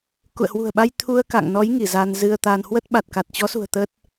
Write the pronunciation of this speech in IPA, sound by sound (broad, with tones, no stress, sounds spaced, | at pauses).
k ṵ˧˨ ə̯ h w ṳ˨˩ ə̯ ɓ a˧ j t̪ʰ u˧ ə̯ k a̰˧˨ ŋ n ɔ˨˦ j ŋ i˧˩ z a˧ n z ɨ˧ ə̯ t̪ a˧ n h w ə˦˥ t̚ ɓ a˨˩ t̚ k a˨˩ t̚ t͡ɕ ɔ˨˦ s ṳ˨˩ ə̯ t̪ ə˦˥ t̚